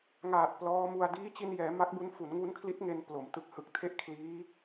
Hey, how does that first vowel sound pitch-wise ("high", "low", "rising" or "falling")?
low